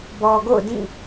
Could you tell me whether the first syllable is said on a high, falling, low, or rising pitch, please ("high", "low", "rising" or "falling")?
low